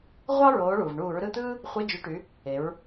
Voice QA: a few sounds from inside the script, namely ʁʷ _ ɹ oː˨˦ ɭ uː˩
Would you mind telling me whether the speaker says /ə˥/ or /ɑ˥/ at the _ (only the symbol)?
ɑ˥